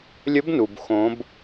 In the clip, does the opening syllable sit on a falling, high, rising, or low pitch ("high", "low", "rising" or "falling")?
rising